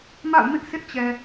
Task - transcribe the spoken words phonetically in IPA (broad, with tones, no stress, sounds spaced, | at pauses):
m a̰˦˨ ʊ̯ m ɪ˦ ʔ s ɪ˦ ʔ t͡ɕ ɛ˨